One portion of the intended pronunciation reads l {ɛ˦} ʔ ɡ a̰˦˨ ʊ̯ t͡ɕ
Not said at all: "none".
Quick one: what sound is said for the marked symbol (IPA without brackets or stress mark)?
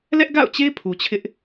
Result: ɛ˦